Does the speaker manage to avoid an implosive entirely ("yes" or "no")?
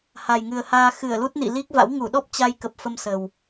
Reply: no